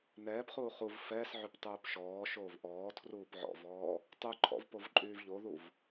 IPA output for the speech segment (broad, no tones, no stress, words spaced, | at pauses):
nɛːpχuː χuv fɛːsʕyp tˤuːpʃɔːʃoːv ʔɔːtʰruːp ʕɔ̰vɔː | tˤuǃʰɔ̰v povǃʼyːvʎoðuv